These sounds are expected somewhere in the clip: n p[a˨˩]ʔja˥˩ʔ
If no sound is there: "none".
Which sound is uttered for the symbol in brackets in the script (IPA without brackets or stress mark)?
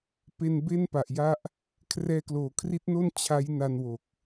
a˨˩